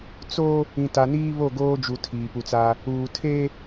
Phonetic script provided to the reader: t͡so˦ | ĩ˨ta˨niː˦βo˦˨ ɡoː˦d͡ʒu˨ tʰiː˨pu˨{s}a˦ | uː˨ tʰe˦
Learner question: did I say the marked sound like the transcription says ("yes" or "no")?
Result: no